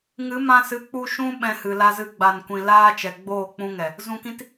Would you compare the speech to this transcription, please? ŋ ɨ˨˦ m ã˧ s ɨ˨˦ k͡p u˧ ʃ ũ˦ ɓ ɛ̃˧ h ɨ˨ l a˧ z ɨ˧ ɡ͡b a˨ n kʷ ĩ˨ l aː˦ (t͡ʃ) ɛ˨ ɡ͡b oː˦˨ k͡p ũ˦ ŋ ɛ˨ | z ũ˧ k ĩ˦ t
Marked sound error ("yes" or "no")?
no